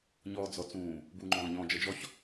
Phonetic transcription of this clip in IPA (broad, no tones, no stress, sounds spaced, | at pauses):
ɲ ɔ d͡z ɔ t͡s ũː | b u ŋ͡ǃ ɔ̃ː ɲ ɔ̃ d͡ʒ ɤ d͡ʒ ɔ ç